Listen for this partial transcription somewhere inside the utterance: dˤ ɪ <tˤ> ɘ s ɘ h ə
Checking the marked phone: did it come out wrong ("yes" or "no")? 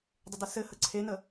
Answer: yes